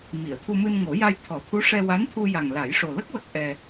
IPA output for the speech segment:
m i˨˩˨ ə̯ t̪ʰ u˧ m ɨ˧ n ŋ o˨˩˦ j a˧ j t̪ʰ ɔ˨˩˦ t̪ʰ u˧˥ ʂ ɛ˧ w a˧˥ n t̪ʰ u˧ j a˨˩ ŋ l a˨˩˦ j ʂ o˨˩ l ə˦˥ k̚ w ə˦˥ k̚ ʔ ɛ˧

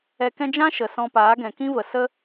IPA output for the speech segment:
ɛ˧ k ɛ̃˦ d͡ʒ ã˦ ʃ ə˨ s ɔ̃˧ p aː˨˦ ɡ ɛ̃˨ k ĩ˦ v ə˨ s ə˦

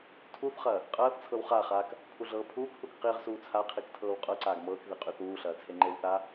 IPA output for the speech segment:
tʰ u θ χ ɐː | qʼ ɐː θ t͡sʰ ɤ w χ a χ aː k | pʰ u ɮ ɤː pʰ uː k θ u k q i ʁ s uː t͡sʰ a qʰ i k tʰ ɤː w qʼ ɤ ǀ aː ɡ m ɤː k ð i qʼ y θ uː ɬ ɐː t͡sʰ e ŋ͡ǃ e w θ aː

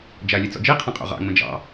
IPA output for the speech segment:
d͡ʒ a lʲ ɛ t͡s ɔ̰ d͡ʒ i qʰ ɛ̃ qʼ o̰ ʁ ɑ̰ ŋ͡m ə̃ d͡ʒ ɑ̰

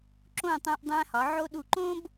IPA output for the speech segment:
ǁ õ˧˩ tˤ æ̃˧ ʔ dˤ æ̃˧ h ɒ˩˧ ʕ o˧ ɗ u˧˩ ǃ õ˥ b

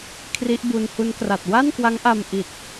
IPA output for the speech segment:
kʰ r i˦˥ ʔ b u˧ n h u˦˥ n k r a˨˩ t̚ w a˥˩ n k w a˦˥ ŋ ʔ a˧ m ʔ i˨˩ t̚

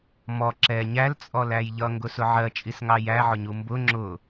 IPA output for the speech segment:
m ɔ ǁ ɛ ɲ æ l t͡sʼ ɔ l æ j ʎ ʌ ŋ ɡ ʊ s ʊ ʕ ɜ t͡ʃʼ i s ŋ ɑ j æ ʕ ʊ ɲ u m b ʊ ŋ͡ǁ ʊ

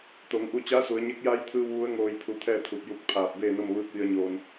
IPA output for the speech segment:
t̪ o˩˧ ŋ ʔ u˧ t͡ɕ aː˧˥ s u˩˧ ə̯ ɲ e˧˥ k̚ j a˧˥ j t̪ʰ ɯː˧ w ʋ u˧˥ ə̯ ŋ oː˧ j pʰ u˧ t̪ʰ ɛː˥˨ t̪ʰ u˧˩ p̚ j u˧˥ k̚ pʰ aː˧˩ p̚ b eː˥˨ n o˥˨ m ʋ ɯː˧˥ k̚ ʋ i˧ ə̯ ɲ oː˧ n

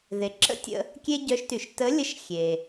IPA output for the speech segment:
ð e˩ ǁ ə̰˥ tʲ ə̰˧ | kʲ e˥ ɟ œ˧˥ ʃ t y˩ ʃ t ə˧˥ lʲ ə˧˥ ʃ xʲ e˩

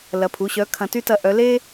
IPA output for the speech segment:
l ɐ˩˧˩ pʰ u˩˧˩ ɕ œ˨˥ kʰ ɐ̃˨˥ t y˥ t ɐ˦˨ ʔ œ˨˥ l e˥

